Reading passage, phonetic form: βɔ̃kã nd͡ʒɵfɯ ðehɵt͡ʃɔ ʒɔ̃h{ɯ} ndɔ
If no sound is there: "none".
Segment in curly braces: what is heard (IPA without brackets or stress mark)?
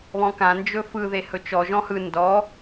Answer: ɯ